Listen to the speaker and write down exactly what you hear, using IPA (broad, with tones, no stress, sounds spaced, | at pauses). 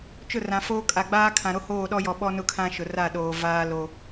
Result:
t͡ʃ ʊ˦˨ r ã˨ f oː˦ kʼ a˨ ɡ͡b aː˦ kʰ ã˨ ɾ o˦ h oː˦˨ ɗ ɔ˦ j ɔ˨ ɓ ɔ˦ n ʊ˦ kʰ ã˦ ʃ ʊ˨ r a˦˨ ɗ oː˨ v aː˦ l o˦